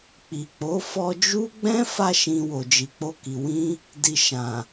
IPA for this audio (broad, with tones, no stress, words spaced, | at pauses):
k͡pi˨k͡po˨˦ fɔ˧d͡ʒu˦ɡ͡bɛ̃˦ fa˧ʃĩ˨ wo˨d͡ʒi˨k͡po˧ki˨ wĩ˧ | di˨ ʃã˨